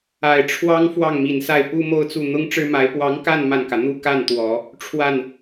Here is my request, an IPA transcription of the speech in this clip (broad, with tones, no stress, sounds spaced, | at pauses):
a˨˩ ɪ̯ ʈ͡ʂʰ w ɑ˥ ŋ f w ɑ˥˩ ŋ m i˨˩ n s a˥˩ ɪ̯ p u˥ m o˥ ʊ̯ t͡s u˥˩ n̪ ʊ˥ ŋ ʈ͡ʂ ɻ̩˥ m a˧˥ ɪ̯ p w ɑ˧˥ ŋ k a˥˧ n m a˥˩ n k ä˩ n̪ u˥˧ k a˥˩ n t̪ w ɔ˨˩˦ | ʈ͡ʂʰ w a˥˩ n